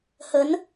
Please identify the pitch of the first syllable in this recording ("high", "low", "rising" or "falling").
rising